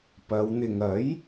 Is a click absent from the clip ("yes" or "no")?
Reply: yes